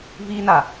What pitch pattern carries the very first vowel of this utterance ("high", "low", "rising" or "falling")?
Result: high